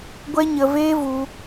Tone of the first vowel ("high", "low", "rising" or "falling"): high